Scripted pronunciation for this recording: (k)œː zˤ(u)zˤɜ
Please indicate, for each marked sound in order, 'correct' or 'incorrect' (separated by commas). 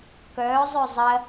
correct, incorrect